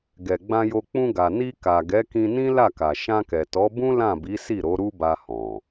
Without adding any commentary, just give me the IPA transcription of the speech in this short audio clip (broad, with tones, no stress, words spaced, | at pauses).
ɡɛ˨ɡ͡bã˧jo˧ k͡pũ˧ɡa˨ ni˧ ka˨ɡɛ˨˦kĩ˧nĩ˦ la˦˨ka˨ ʃã˧kɛ˨tɔ˨˦bũ˦ lã˦˨bi˨˦ si˦˨ɾo˨˦ ɾu˦ba˧hɔ̃˨